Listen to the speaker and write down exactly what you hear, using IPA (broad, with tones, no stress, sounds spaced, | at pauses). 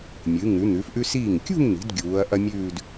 mʲ ɨ˩˧ ŋ ʉ˩˧ n̪ ʉ˩˧ f ʔ ʉ˧ s iː˧˩ ŋ kʲ ṳ˥˧ ŋ n̪ i̤˩˧ d ɡʲ uː˩˧ ɐ̯ ʔ ɐ˥ mʲ ʉː˥˧ d